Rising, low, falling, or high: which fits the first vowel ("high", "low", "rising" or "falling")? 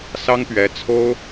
high